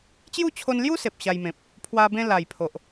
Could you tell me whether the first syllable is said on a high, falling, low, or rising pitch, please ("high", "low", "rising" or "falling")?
falling